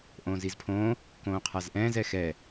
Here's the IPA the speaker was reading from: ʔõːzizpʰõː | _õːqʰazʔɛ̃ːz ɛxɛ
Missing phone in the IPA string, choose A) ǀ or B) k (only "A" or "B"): B